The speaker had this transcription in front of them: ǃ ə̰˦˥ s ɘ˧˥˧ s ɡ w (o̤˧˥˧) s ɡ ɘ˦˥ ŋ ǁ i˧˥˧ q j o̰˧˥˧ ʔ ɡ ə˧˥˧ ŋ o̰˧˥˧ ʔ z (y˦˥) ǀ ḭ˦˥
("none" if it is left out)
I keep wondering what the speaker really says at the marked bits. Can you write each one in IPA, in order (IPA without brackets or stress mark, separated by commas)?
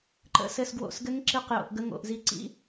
o̰˧˥˧, i˦˥